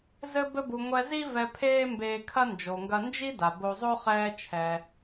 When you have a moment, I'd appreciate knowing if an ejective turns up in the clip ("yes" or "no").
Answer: no